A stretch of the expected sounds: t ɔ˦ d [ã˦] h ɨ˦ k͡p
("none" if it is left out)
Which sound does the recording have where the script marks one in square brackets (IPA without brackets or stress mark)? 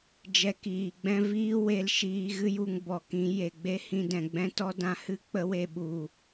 ã˦˨